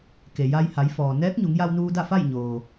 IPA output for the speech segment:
ke˩ja˧jha˩˧jfɔː˩ nɛː˧˥k̚ɲu˩˧ŋja˧wnuː˧ da˥˨fa˥˨jɲoː˩

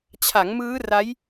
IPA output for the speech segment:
t͡ɕʰa˩˦ŋmɯː˦˥ra˦˥j

